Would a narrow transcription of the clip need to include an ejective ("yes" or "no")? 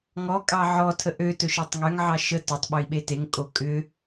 yes